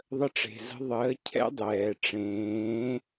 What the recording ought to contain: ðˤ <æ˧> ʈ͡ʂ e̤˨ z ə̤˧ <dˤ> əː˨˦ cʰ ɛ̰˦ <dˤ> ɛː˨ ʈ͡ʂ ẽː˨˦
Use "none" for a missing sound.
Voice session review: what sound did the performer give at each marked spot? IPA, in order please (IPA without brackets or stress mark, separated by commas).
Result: ə˧, ðˤ, dˤ